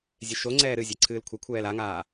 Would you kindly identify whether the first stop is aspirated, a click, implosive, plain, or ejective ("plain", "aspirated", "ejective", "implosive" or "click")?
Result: click